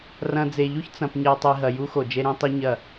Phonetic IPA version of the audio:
r ɐ̃˨ d͡z e˨ ʎ u˦ ç t͡s ɐ̃˨ p ɲ ɛ˨ tˤ i˨ ɦ ɐ˨ j u˦ x o˨ d͡ʒ e˦ ɾ ĩ˦ tˤ i˦ ɲ ɐ˦˨

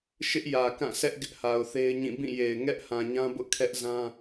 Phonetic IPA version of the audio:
ʃ ɪ˦ ʔ j ä˨ k ã˦˨ sʰ ɛ˦ ʔ ɡ ɪ˦ ʔ h a˨ ʊ̯ θ e˦ ɪ̯ ɲ ĩ˦˨ b ĩ˦˨ j e˨ ɪ̯ ŋ ɛ˦ ʔ h ã˨ ɲ ã˦ b ʊ˦ ʔ kʰ ɛ˦ ʔ z ã˦

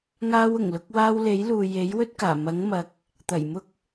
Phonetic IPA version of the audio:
ŋ aː˧ w ʊ˨˩ ŋ l ʊ˧ k̚ w aː˧ w l e˨˥ j l uː˨ j e˨˥ j w ɵ˥ t̚ k aː˨˩ m ɐ˨˥ ŋ m ɐ˨˥ k̚ | t̪ ɐ˨˩ j m ʊ˧ k̚

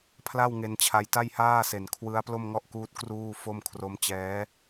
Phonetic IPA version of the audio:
pʰ l a˥˩ w ŋ e˧ n t͡ɕʰ a˧ j t a˥˩ j h aː˥˩ s e˨˩ n kʰ w ɯ˦˥ a̯ p l o˥˩ m ŋ ɔ˥˩ ʔ k uː˦˥ t̚ k r uː˥˩ f o˥˩ m kʰ r o˦˥ m t͡ɕ ɛː˦˥

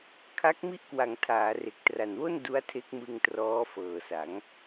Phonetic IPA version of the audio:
kʰ a˦˥ k̚ m i˦˥ ʔ k w a˩˦ ŋ tʰ aː˩˦ r e˨˩ k̚ t r a˨˩ n w o˥˩ n d u˦˥ a̯ tʰ e˦˥ k̚ m ɯ˧ ŋ t r ɔː˦˥ f ɤː˨˩ s a˩˦ ŋ

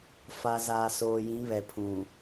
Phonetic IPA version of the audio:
f a˨ z a˨ s oː˨ j ĩ˨˦ β ɛ˨ pʰ ũ˨

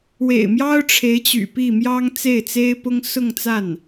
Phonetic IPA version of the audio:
w ḛ˨˩ ɪ̯ m j ɑ˥ ʊ̯ ʈ͡ʂʰ e˧˥ ɪ̯ t͡ɕ y̰˨˩ p i˥˩ m j ɑ˥ ŋ t͡s e˥˩ ɪ̯ t͡s e˥ ɪ̯ p ʊ˥ ŋ s ʊ˥˧ ŋ t͡s a˥˩ n

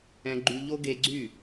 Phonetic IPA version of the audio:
ɛ̃˧ ɡ͡ǃ y˧ ʎ o˦ ɡ e˧ ɡ͡ǀ y˦˨

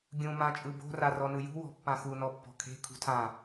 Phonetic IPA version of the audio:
ɡʲ ũ m ã t͡ʃʼ ɯ b o̤ r a r ɔ n ɯ j ṳ w ɔ̤ pː ã x u n ɔ pː ɔ̤ kʰ e̤ kʰ ṳ tʰ ã

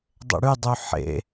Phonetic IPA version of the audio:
dˤ ḛ ɽ y dˤ y ħ ḛ

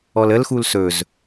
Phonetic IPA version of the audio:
ɔ l ə l x u l s ɵ z

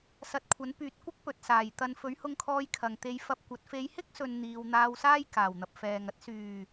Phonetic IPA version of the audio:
s ɐ˨ t̚ kʷʰ ɐ˨˥ n p yː˨ t̚ kʷ ɪ˥ k̚ p ɵ˨ t̚ s aː˨˩ j t̪ ɐ˨ n f ɵ˨˥ ɥ h ʊ˧ ŋ kʰ ɔː˧ j kʰ ɐ˨ ŋ t̪ e˨˧ j f ɐ˧ p̚ kʷ ɐ˨˥ t̚ f e˨˧ j h ɪ˥ k̚ s ɵ˨ n n̪ iː˧ w n̪ aː˧ w s aː˥ j k aː˨˩ w n̪ ɐ˨ p̚ f ɛː˨ ŋ ɐ˥ t̚ s yː˨˩

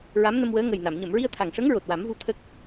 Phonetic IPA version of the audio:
ɹ a˧˥ m n ə˧ m w əː˧˥ ŋ ə˨˩ j n a˨˩˨ m ɲ ə˨˩˨ m ɹ i˧ ə̯ t̪ʰ a˨˩ ŋ ʂ ə˧˥ ŋ ɹ o˨˩ t̚ w a˨˩˦ m v u˧ t̪ʰ ə˦˥ k̚

